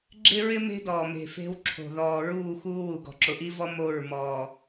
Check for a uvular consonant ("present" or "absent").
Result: absent